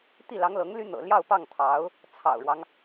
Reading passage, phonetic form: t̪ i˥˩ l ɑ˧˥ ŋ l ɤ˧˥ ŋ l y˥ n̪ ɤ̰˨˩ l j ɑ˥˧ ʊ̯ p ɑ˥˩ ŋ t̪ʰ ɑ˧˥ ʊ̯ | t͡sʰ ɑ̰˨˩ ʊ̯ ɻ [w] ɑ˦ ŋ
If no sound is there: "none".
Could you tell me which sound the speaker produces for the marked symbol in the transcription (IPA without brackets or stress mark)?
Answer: w